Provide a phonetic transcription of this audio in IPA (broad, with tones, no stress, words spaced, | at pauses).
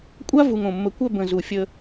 kʷʼa˦ vu˨ŋõ˨ mːə˨kʷœ˦˨ bə̃˨zu˨ fʲə˦